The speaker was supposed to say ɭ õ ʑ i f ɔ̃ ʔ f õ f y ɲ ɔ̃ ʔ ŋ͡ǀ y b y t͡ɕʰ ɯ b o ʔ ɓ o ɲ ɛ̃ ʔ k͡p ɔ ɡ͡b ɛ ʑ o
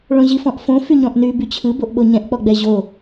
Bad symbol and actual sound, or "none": ŋ͡ǀ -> n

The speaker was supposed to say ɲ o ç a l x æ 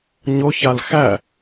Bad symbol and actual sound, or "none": none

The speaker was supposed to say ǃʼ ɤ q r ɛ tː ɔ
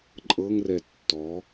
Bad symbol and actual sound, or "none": q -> ŋ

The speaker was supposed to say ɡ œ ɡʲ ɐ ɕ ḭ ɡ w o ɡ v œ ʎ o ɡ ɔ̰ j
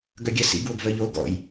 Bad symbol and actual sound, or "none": ɕ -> s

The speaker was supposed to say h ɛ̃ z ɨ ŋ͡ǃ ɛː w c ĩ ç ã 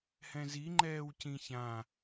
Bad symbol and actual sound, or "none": ɨ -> i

